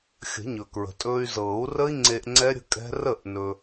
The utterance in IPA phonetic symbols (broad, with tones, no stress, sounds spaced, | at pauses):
xʲ ə̤˨˩˦ ɲ ɵ˩ k ɹ ə̤˩ tʼ ɵː˧ y̯ z ɤː˨˩˦ u̯ r ə˦˥ i̯ ŋ͡ǀ e˧ ʔ ŋ͡ǀ ɛ˦˥ ɾʲ ə̤˦˥ kʼ ɛ̤˦˥ r ə˥˩ ʔ n ɵ˧